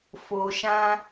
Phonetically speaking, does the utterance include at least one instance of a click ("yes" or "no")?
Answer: no